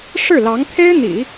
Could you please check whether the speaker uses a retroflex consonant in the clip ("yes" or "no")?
yes